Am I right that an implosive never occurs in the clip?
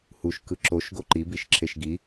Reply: yes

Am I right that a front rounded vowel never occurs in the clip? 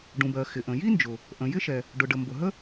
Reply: yes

